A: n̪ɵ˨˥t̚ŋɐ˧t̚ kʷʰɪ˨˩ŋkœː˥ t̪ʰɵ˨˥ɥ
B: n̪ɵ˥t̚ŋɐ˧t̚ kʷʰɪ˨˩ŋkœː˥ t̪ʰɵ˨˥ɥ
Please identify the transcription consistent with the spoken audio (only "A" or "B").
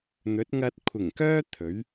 A